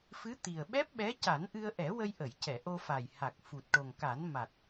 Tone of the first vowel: rising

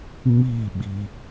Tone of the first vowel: falling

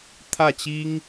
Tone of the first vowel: falling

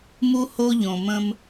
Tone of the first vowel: high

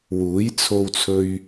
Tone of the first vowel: rising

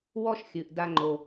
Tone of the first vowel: high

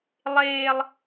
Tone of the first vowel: high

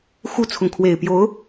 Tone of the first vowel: high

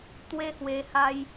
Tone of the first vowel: high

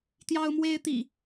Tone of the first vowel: high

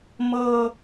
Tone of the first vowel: low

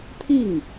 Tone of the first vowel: falling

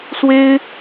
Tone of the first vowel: high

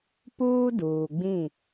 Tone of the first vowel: high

